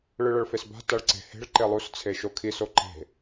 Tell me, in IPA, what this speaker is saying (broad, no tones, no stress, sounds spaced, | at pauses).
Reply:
ɭ ɯ ɭ ʌ ɭ f e s b a̤ t a ɭ ǀ e̤ h e̤ ɭ ǃ e lˠ u s t͡sʰ e ʃ o kʰ i s o ǃ e̤